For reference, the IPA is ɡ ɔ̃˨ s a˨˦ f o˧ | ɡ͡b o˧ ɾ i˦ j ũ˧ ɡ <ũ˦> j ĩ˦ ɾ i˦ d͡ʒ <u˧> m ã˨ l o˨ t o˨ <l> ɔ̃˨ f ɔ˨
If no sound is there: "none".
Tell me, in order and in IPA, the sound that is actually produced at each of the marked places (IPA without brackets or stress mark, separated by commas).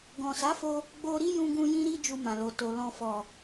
ũ˧, u˧, l